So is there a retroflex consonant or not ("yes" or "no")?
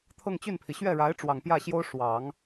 yes